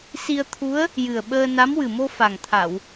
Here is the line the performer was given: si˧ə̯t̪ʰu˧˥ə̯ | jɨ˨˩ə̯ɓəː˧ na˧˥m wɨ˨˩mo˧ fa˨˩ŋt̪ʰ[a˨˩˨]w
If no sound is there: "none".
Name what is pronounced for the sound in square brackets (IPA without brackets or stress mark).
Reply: a˨˩˨